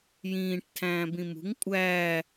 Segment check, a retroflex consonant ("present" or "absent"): present